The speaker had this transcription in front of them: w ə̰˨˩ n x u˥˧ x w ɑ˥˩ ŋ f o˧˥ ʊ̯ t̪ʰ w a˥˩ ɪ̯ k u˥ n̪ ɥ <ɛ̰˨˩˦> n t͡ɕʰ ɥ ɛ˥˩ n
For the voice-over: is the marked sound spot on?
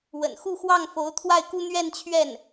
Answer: no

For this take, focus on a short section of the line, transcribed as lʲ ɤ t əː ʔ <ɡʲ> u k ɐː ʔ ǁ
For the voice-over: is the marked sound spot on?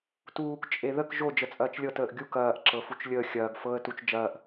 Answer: yes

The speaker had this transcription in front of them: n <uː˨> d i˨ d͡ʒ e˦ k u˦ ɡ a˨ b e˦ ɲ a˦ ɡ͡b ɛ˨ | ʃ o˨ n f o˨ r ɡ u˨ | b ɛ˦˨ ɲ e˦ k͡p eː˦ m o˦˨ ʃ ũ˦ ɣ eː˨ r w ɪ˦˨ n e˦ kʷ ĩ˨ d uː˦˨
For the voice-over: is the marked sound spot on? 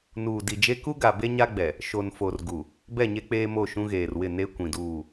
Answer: yes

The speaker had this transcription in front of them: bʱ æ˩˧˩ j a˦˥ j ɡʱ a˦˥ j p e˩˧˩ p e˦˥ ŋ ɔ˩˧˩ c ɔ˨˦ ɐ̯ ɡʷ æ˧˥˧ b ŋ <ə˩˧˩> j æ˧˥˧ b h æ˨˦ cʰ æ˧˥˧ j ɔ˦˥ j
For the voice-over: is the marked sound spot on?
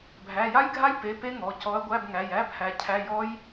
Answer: no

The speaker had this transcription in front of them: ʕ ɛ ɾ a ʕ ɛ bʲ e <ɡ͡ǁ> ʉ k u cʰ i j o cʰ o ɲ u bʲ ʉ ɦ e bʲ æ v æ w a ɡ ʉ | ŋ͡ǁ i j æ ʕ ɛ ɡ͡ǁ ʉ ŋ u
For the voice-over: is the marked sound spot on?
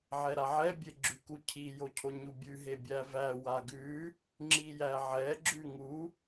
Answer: yes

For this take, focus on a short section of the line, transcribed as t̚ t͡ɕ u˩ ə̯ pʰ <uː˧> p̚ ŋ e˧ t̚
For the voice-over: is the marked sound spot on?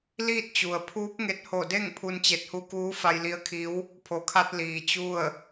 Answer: no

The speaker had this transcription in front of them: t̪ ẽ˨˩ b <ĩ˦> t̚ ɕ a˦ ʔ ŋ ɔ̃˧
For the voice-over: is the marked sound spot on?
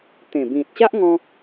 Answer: no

